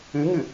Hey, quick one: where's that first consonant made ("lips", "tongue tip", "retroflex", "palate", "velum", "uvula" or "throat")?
velum